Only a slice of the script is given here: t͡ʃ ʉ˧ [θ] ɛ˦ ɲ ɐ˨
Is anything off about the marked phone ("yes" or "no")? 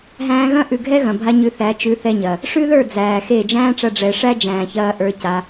no